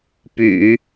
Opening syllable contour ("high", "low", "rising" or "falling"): low